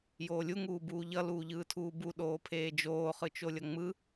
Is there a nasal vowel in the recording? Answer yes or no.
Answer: no